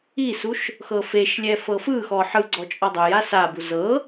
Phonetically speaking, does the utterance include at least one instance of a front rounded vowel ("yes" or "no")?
no